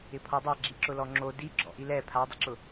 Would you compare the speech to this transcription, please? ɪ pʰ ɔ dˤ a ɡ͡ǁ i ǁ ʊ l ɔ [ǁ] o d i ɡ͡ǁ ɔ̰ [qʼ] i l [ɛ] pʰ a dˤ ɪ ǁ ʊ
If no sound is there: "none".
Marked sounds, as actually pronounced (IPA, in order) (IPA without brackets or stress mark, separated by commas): ŋ͡ǁ, ʔ, ɛ